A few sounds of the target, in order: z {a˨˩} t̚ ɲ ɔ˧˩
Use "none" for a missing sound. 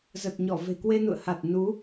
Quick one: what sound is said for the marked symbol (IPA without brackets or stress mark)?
ə˨˩